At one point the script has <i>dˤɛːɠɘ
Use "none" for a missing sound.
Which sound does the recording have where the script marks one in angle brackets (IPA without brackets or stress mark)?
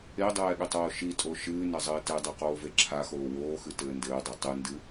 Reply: e